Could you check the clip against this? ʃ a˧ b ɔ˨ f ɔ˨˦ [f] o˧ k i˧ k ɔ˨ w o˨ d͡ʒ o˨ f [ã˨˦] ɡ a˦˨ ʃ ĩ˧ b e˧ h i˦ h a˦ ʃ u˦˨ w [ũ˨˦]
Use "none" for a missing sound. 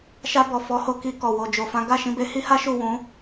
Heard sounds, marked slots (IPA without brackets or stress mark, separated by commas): h, ã˨˦, ũ˨˦